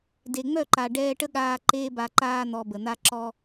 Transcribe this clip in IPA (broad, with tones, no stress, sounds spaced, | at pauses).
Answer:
d e˨ ŋ͡m œ˦˨ ǃ a˨ ɖ ɛː˧ ʈ ə˦ ɠ aː˧ ǃ eː˦ b a˧ ǃ aː˦ n̪ ɔ˦ b ə˧ n̪ a˧ ǁ ɔ˧